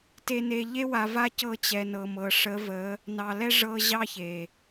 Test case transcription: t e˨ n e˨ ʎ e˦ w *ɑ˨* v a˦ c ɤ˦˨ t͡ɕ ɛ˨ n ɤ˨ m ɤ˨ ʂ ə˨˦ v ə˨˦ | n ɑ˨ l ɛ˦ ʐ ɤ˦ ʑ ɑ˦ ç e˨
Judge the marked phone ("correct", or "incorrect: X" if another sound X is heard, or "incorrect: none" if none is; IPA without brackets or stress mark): incorrect: a˨